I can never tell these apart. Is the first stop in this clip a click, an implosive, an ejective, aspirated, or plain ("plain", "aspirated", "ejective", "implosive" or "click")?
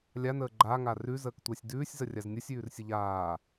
click